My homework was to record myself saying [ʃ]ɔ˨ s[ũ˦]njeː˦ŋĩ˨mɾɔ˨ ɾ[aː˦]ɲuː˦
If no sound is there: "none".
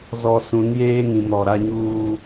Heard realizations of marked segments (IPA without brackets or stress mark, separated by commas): z, ũ˨˦, a˦